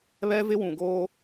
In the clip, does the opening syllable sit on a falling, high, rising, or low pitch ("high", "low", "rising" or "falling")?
high